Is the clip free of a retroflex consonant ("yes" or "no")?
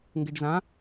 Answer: no